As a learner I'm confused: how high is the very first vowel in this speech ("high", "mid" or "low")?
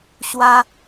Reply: low